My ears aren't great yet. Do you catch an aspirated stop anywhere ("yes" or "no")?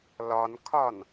yes